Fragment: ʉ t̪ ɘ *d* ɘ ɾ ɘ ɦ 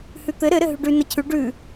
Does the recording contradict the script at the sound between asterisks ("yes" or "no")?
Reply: yes